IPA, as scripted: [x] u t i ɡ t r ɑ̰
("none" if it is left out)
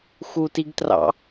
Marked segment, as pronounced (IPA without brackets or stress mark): x